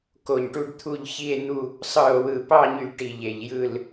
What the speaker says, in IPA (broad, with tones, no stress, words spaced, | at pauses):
ko˧˩ɲʈu˥˧ɖt̪ʰu˥˧ʎ çi˥˧e̯n̪u˥˧ | sˤɯ˧˩o̯wɯ˧˩pɑ˥˧ɲy˧˩ ʈi˧˩ʎe˧˩ʎjɯ˥˧l